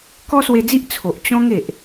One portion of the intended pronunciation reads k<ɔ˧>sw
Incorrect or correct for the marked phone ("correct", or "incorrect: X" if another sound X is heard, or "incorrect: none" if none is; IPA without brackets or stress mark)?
incorrect: ɔ˦